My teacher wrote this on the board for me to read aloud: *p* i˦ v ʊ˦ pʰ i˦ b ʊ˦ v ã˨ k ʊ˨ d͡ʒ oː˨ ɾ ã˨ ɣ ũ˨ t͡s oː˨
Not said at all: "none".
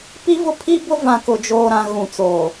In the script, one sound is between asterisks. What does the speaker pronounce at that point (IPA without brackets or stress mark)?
p